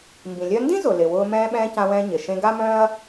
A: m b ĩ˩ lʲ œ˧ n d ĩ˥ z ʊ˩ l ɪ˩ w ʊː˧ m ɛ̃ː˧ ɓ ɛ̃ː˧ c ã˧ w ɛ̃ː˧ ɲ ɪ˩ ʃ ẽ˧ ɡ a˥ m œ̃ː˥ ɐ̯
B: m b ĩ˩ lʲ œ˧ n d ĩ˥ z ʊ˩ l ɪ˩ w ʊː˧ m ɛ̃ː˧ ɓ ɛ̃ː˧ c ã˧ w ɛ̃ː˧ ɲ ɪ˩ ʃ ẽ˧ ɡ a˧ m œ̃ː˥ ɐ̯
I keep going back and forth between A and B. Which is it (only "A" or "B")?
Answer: A